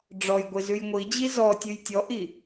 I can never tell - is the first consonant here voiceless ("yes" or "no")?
no